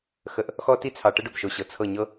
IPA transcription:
x ə˨ ʔ | x ɔ˦ t i˦ t͡sʰ ɑ˨ ʈ ə˦ ɖ o˨ b ʃ o˨ ɕ ɤ˨ t͡sʰ ɤ˦˨ ɲ ɤ˦

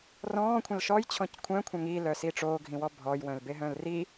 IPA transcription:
r ɔ̃ː kʷʰ ə̃ l ʃ ɔ j t͡ɕʰ ɔ̃ c kʷʰ œ̃ kʷʰ œ̃ ŋ i l œ s i ʈ͡ʂ oː ɡʱ ĩ w ɔ bʱ ɔ j w œ̃ l b e ɦ œ̃ l r i

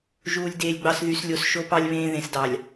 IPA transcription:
ʒ uː˨ lʲ d eː˨ lʲ ɡ͡b ɑ˨ s ð y˨ s lʲ o˨ s ʃ o˦ p ɑ˦ lʲ β ẽː˦ ð ẽ˨ s d ɑ˨ lʲ

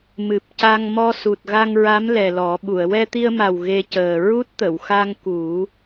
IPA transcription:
m ɨ˨˩ p̚ c a˧ ŋ m ɔ˧ s u˨˩ t̚ ɣ a˧ ŋ ɹ a˧˥ m l ɛ˨˩ l ɔ˨˩˦ ɓ u˨˩˨ ə̯ w ɛ˧ t̪ i˧ ə̯ m a˨˩ w ɣ e˧ c əː˨˩ ɹ u˦˥ t̚ t̪ ə˨˩˨ w x a˧ ŋ k u˨˩˦

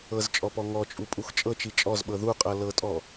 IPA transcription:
ɤ z t͡ʃʼ ɔ p ɔ ŋ ɔ t͡ʃʼ u pʼ u x t͡ʃʼ ɤ t͡ʃ i t͡ʃʼ ɔ z ɓ ɤ ð u qʼ ɤ l ɤ tʼ ɔ

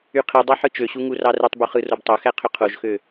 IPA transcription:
y qʰ i dˤ ɑ ħ ɯ t͡ʃ ø ɕ u ŋ u r ɑ r ɯ tˤ b u χ ɯ r o b tˤ o x æ qʰ ø qʰ o ʒ x ø

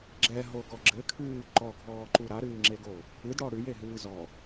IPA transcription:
ɡ͡ǁ ɛ ɦ o ɡ ɔ ɡ͡ǁ ɘ kʰ ɨː ǃ ɔ ɡʱ ɔː ǃ u ɾ a ɾ ɨː ŋ͡ǁ e ɡ o | ɨ d ɽ ɔ ɽ ʉ j e ɦ ɨː z ɔ

